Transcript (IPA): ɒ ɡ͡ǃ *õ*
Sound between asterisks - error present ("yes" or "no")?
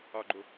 yes